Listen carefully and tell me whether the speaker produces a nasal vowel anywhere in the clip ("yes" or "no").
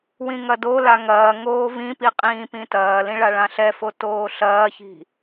yes